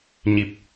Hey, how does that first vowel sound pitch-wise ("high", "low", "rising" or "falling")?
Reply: low